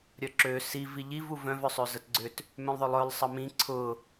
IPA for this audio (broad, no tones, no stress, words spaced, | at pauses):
ɾʲœǁø si viʎiv uvœ̃v œsˤøzətɡ͡ǀʏt | mœ̃lˠðˤʏlˠœlˠ sˤəmĩ ǀʰʊ